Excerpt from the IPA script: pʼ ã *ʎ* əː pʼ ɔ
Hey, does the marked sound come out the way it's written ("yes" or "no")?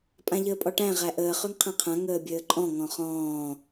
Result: yes